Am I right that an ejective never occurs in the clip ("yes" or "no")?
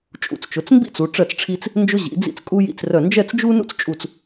no